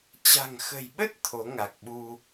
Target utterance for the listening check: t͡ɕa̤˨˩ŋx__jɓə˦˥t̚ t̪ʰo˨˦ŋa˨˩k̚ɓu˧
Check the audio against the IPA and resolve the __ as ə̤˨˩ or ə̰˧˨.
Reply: ə̤˨˩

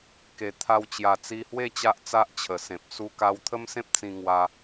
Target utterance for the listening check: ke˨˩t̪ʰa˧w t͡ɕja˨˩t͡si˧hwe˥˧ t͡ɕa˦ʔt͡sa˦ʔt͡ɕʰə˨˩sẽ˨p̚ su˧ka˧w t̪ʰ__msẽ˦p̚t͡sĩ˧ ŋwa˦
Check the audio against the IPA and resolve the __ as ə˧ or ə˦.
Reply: ə˦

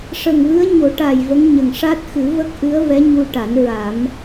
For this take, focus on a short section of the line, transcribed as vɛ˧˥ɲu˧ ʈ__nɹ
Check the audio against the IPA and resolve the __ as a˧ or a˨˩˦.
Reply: a˨˩˦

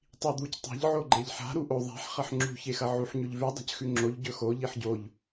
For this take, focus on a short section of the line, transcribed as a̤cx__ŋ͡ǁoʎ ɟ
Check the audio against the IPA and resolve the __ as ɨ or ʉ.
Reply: ʉ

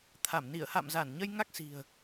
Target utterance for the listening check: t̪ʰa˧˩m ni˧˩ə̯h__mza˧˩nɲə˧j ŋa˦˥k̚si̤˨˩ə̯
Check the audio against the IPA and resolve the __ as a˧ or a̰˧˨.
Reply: a̰˧˨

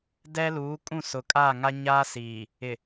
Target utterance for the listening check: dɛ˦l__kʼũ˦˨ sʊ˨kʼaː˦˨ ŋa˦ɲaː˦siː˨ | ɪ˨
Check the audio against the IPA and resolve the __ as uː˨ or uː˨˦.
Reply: uː˨˦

